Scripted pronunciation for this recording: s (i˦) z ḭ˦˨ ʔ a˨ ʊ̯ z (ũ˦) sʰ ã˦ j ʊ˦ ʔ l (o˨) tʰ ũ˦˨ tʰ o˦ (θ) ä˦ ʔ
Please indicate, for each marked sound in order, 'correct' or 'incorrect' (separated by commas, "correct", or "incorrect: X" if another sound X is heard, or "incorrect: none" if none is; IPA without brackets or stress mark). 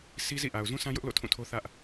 correct, correct, incorrect: o̰˦˨, correct